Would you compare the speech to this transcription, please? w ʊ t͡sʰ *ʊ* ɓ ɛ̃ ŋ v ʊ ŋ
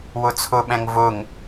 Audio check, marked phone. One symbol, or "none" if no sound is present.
ʊ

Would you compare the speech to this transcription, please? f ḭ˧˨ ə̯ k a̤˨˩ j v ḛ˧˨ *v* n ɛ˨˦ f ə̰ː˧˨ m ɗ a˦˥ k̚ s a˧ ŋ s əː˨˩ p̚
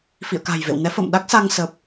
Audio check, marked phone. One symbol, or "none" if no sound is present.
w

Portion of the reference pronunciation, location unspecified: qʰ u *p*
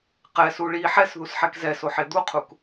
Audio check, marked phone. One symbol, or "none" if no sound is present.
k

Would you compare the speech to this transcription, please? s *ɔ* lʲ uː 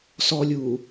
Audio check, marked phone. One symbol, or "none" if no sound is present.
ɔ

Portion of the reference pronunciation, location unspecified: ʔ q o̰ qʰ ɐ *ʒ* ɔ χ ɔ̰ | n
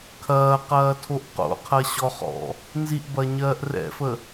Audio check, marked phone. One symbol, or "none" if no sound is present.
ɕ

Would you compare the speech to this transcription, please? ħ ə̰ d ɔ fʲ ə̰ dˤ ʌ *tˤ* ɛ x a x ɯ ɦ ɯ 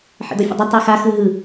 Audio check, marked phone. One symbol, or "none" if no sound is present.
tˤ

